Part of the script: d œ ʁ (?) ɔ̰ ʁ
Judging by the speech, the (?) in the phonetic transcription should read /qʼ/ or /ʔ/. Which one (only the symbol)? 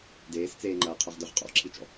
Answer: qʼ